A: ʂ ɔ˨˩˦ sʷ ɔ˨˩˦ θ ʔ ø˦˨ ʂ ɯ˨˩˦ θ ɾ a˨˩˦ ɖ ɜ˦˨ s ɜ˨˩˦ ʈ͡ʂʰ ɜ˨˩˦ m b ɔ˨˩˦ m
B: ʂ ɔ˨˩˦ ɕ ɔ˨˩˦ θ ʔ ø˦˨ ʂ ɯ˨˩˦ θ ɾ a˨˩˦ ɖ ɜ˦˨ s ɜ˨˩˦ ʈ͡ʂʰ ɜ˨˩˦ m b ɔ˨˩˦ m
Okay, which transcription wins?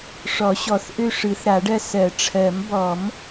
B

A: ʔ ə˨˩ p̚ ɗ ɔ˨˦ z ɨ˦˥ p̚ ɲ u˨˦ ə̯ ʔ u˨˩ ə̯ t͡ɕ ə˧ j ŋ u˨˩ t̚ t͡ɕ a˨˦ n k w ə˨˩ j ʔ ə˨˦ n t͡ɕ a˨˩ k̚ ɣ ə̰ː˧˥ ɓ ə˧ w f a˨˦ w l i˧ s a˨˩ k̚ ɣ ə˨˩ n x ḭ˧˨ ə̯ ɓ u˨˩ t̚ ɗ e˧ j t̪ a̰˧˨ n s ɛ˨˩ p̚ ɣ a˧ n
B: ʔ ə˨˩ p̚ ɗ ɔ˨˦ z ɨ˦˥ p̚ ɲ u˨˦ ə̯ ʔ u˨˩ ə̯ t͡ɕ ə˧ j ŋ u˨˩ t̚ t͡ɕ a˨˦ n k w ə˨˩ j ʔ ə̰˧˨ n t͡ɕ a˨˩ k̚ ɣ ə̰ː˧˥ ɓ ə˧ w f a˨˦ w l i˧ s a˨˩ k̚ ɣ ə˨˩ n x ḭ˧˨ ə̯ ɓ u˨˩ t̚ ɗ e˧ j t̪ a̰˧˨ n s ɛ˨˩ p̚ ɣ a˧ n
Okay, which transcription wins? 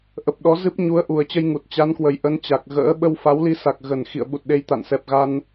A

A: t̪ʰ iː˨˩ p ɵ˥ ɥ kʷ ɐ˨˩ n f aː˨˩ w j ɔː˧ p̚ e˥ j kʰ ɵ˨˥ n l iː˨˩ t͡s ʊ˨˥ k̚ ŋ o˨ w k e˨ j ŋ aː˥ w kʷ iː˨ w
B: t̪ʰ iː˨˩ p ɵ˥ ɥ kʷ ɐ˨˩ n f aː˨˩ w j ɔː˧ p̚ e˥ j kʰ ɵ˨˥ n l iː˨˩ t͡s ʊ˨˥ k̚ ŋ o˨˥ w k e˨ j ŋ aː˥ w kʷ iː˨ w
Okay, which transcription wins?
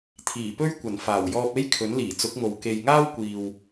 A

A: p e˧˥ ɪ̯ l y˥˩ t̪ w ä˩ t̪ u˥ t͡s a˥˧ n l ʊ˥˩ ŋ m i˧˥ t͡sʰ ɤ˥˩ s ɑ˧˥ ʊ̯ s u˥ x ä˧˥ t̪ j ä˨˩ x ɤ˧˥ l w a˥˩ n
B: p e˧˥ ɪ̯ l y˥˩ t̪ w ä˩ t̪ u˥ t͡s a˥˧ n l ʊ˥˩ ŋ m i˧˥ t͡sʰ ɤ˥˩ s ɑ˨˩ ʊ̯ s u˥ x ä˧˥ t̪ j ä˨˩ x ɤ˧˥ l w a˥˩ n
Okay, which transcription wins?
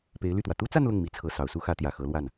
B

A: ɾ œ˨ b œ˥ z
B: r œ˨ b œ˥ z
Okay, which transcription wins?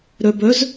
A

